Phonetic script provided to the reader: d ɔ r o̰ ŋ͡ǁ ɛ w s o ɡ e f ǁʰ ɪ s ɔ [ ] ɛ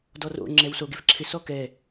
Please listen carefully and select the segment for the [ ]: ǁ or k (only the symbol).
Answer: k